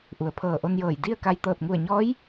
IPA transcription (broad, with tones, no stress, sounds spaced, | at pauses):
ʔ u˩˧ ə̯ pʰ ɤː˧˩ ʔ o˧ n j ɤː˧˩ j d i˥˨ ə̯ k a˧ j t̪ ɤː˧˩ t̚ ŋ u˧˩ ə̯ ɲ ɔː˧˥ j